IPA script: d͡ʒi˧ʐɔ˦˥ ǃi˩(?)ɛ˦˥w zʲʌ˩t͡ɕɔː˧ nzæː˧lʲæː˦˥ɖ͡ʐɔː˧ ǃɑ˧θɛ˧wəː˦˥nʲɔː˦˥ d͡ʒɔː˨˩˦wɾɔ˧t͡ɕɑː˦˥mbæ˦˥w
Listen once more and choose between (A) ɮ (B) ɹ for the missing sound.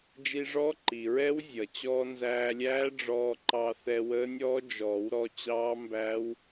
B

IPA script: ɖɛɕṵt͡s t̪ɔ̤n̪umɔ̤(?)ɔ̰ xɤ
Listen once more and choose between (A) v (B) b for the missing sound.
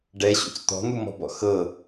B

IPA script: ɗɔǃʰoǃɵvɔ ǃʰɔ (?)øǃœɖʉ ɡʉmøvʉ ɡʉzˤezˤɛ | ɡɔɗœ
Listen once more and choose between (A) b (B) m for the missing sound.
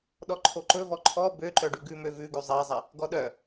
A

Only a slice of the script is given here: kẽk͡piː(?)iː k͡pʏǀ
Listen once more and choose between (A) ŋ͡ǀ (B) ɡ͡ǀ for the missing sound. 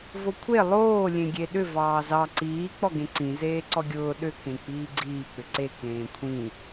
B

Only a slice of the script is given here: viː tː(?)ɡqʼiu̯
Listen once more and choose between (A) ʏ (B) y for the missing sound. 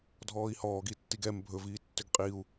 A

